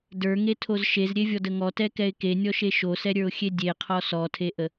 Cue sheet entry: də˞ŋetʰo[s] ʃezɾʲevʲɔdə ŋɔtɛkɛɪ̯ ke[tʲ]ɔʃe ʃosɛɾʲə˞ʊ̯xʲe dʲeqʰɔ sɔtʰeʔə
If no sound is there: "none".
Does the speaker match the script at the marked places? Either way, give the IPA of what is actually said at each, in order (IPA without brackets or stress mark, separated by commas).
z, nʲ